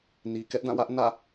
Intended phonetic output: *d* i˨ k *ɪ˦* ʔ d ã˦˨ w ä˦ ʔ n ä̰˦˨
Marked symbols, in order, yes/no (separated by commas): no, no